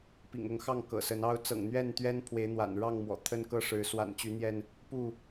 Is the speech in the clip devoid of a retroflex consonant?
no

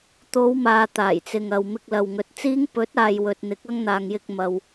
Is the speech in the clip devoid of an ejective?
yes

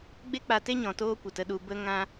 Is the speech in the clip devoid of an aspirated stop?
yes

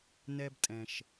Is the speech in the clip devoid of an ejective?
no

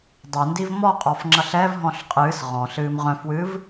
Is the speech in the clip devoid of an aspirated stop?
yes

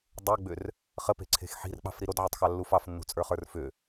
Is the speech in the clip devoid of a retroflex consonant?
yes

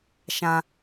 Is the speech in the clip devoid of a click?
yes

